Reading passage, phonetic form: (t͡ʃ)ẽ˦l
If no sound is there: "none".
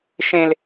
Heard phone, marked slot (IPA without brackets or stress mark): ʃ